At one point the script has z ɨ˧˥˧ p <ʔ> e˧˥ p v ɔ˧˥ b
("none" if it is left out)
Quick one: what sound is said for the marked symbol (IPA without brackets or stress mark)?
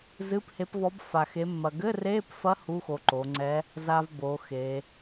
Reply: h